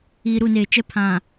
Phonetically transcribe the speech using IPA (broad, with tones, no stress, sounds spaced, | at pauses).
iː˨ ɾ u˦˨ n eː˨ t͡ʃ ɛ˦ pʰ ã˨